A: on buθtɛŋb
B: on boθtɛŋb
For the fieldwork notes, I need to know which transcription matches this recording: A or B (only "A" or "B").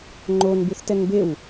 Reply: A